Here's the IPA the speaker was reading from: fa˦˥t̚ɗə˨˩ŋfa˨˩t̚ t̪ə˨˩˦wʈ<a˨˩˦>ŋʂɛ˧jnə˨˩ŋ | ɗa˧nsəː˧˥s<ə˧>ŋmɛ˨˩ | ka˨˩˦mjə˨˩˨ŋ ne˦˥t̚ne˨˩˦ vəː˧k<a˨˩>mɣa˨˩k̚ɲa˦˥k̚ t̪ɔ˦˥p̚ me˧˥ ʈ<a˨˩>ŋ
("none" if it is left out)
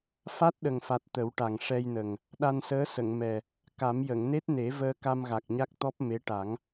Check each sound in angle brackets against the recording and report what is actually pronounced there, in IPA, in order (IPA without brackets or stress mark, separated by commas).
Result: a˨˩, ə˨˩˨, a˧, a˨˩˦